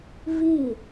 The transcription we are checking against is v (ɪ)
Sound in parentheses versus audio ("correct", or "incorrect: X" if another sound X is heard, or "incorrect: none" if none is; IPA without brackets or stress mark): incorrect: i